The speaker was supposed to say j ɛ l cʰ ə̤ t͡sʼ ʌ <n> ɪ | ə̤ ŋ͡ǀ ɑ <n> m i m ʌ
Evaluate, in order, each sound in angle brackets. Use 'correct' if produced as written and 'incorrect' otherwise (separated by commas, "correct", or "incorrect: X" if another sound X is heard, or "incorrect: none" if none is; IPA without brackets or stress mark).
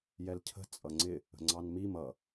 incorrect: ŋ͡ǀ, correct